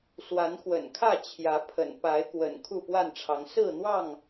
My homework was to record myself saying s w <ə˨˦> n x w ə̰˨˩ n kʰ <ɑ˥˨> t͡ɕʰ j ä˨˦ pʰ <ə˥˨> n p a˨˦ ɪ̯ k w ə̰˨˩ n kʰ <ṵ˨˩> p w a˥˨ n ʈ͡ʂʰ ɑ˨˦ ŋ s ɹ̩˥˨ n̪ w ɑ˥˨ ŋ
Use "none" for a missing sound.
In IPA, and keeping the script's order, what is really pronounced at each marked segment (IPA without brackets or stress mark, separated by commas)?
a˨˦, ä˥˨, ə̰˨˩, u˥˨